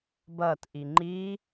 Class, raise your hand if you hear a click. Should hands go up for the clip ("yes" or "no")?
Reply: yes